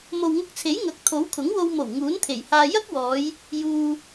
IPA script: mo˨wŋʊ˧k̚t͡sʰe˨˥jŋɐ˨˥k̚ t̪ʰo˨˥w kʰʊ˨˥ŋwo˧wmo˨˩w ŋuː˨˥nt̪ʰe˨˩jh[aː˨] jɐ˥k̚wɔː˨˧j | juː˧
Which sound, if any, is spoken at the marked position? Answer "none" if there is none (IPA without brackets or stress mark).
aː˧